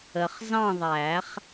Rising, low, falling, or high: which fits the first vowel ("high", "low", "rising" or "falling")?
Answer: low